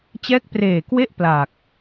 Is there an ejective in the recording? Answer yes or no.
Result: no